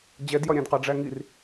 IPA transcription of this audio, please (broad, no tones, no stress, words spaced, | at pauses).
d͡ʑɛdjɒɾʲæ̃dqɑ ɖ͡ʐæŋir